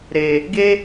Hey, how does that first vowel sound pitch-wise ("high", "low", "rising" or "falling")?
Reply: low